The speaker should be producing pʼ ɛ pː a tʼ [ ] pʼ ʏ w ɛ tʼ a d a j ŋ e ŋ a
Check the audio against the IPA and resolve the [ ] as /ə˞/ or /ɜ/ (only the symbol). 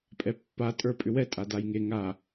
ə˞